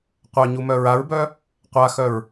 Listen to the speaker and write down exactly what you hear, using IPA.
qʷ œ ɲ u m œ ɹ a ɹ b œ | qʷ a x œ ɹ

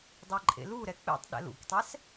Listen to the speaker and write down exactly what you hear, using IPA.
dˤ e ǃʼ ḛ l u ɾ ɛ k͡p ḛ tˤ ɗ ɛ̰ l ṵ k tˤ ɛ s

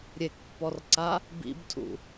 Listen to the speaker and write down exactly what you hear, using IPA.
ɾʲ e k pː ɔ r ǀ a | b ḭ b tʰ ṵ

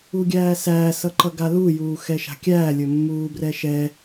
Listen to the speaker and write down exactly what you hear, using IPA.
u ɡʲ æː s æː s ʌ ǃ ʌ ɡ a l u j uː x ɛ ʃ a̤ kʲ æː lʲ ɵ mː uː b r ɛ ʃ ɛ

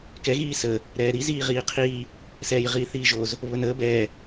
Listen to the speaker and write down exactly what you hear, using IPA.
k ɛ ɣ iː s ə | ɾ ɛː ɾ i z iː ʁ iː qʰ i | s ɛː j ʁ iː θ iː ʒ o z | β ə n əː b ɛ

